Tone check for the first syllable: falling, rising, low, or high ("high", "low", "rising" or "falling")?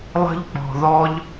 high